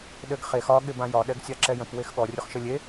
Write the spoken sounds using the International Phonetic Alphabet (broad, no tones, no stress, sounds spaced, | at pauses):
ɗ ɘ ɡ χ e x ɒ ɠ ɪ b ã j ɒ ɗ ɛ ɡ sʲ a ǁ ɛ j ə̃ p w e x ɠ ɔ rʲ ʊ χ ʃ ɘ lʲ e